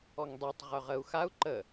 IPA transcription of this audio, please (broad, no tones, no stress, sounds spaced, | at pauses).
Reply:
ɔ ŋ dˤ e tˤ ʁ œ ʁ ə u̯ x a u̯ ǃ ə